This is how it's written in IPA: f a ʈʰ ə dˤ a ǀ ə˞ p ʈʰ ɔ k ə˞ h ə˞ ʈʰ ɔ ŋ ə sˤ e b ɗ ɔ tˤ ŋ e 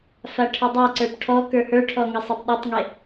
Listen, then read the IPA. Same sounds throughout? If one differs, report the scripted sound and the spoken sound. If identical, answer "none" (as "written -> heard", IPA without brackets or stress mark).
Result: none